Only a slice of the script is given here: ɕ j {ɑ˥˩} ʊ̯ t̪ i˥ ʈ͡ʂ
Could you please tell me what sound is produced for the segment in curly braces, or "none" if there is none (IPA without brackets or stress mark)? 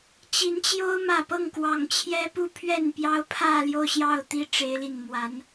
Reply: ɑ˥˩